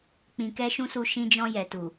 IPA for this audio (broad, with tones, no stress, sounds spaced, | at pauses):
k͡p ĩ˧ k ɛ˦ ʃ ũ˦ s u˧ ʃ ĩ˧ d͡ʒ ɔ̃˧ j ɛ˨ t u˨